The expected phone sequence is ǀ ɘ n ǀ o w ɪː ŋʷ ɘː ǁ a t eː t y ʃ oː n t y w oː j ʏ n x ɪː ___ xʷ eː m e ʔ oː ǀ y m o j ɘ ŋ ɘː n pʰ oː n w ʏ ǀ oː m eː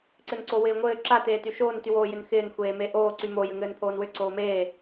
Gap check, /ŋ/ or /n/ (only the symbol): n